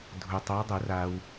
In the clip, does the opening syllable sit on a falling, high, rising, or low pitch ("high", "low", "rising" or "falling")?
low